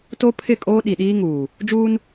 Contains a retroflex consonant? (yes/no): no